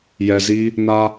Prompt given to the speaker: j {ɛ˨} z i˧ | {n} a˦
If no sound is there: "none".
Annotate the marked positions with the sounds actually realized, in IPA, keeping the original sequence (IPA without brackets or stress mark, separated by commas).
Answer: ɛ˨, n